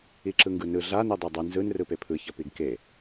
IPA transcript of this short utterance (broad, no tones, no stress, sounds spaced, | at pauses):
i ǁ ɯ ŋ ɡ ɯ n ɯ ɮ a n i dˤ ɛ dˤ ɯ n z ɯ n r ɯ p e pʰ ɯ ç ʌ p i ɡ k e